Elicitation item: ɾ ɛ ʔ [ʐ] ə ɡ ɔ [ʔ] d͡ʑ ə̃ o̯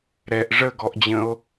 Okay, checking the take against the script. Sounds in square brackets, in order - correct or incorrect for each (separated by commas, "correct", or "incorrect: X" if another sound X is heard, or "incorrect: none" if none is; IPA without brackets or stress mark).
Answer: correct, correct